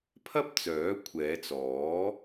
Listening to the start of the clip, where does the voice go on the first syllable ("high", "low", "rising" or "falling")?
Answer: high